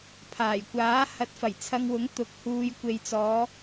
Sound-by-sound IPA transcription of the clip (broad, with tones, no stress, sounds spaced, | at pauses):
pʰ aː˨˩ j kʷ aː˨˥ h ɐ˨˥ t̚ f ɐ˨˩ j t͡sʰ ɐ˧ ŋ w ʊ˨˥ ŋ t̪ ʊ˨˥ k̚ h uː˧ j kʷ e˨ j t͡s ɔː˨˧